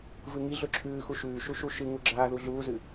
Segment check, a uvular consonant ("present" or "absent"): absent